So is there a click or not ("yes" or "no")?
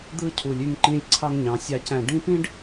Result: yes